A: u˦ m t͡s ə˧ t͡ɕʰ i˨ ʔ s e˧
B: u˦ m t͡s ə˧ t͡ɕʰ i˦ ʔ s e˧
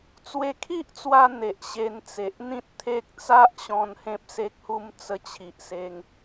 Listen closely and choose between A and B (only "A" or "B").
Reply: A